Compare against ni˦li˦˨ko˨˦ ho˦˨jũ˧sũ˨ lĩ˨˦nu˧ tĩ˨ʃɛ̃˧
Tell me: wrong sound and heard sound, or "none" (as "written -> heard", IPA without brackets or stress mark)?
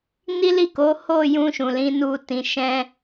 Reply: s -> ʃ